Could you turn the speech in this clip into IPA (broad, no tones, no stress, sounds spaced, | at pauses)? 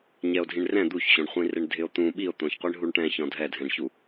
ɲ ɛ o̯ dʱ ĩ ɳ r ɛ̃ d̪ u ç ɕ õ ɳ χʷ ĩ r ɪ ɳ dʱ ɪ o̯ t̪ ũ ɓ i o̯ t̪ õ ç qʷ i ɳ ɦ u ɳ ʈ ɛ̃ ç ɔ̃ dʱ ɛ dʱ ɛ̃ ɳ ç u